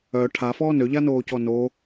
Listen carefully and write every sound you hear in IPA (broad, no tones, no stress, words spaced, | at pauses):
œ ʈʰafɔː nøʎanoːcɔ no